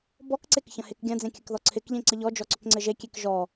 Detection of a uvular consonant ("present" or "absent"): absent